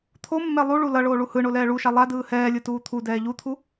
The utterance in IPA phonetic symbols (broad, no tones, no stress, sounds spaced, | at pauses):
t̪ʰ o mː ɛ lˠ u ɭ u l ʌ ɭ oː ɭ u h ɯ ɳ o l ɛː ɭ u ʃ a lˠ a d ɯː h ɛː lʲ ɯ t uː t̪ʰ u d ɛː ʎ u t̪ʰ u